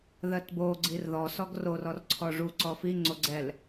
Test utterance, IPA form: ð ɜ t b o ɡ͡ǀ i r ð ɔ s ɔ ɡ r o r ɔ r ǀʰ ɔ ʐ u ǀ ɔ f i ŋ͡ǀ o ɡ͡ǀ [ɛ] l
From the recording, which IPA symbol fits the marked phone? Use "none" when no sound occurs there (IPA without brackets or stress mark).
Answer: ɛ